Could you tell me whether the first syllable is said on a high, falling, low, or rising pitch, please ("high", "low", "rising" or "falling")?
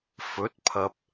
rising